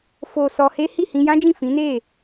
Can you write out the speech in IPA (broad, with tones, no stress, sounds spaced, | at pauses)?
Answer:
f o˨ s ɔ˧ h e˦ h i˦˨ h ĩ˧ j ã˦ d͡ʒ ĩ˦˨ f ĩ˨˦ n e˦˨